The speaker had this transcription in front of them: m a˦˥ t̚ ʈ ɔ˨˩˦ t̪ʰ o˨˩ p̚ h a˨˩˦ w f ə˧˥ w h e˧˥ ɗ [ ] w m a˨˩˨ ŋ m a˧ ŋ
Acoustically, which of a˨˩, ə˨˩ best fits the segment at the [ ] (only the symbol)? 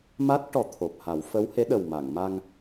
ə˨˩